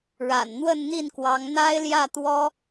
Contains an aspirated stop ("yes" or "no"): no